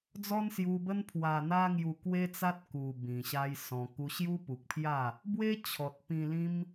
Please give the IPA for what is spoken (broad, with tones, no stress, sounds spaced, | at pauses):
d͡z ɔ˦ n s j u˧ b ə˦ n pʰ w a˧ n̪ a˦ ŋ j u˧ k w e˦ t͡s a˦ t̚ k u˨˩ b ĩ˨˩ ɕ a˦ j s ɔ̃˧ k u˧ ɕ j u˦ p u˨ k̚ pʰ j a˥˧ | b w e˦ t͡ɕʰ ɔ˨ t̚ p ĩ˧ l ĩ˦ m